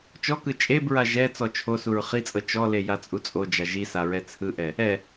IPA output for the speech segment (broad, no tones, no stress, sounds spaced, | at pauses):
t͡ʃ ɔ k ɯ t͡ʃʼ e b ɹ a ʒ ɛ t͡s ɔ t͡ʃʰ o s u ɹ χ i t͡sʼ ɤ t͡ʃ ɔ l e j a t͡sʼ u t͡sʼ o d͡ʒ a ʒ i s a ɹ ɛ t͡sʰ ɯ ʔ ɛ | ɛ